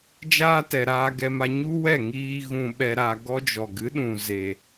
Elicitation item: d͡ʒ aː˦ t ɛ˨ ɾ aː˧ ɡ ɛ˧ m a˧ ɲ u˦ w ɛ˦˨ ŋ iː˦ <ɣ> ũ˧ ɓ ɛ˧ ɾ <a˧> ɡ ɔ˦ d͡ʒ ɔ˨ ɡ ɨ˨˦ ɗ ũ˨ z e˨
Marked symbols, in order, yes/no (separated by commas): yes, yes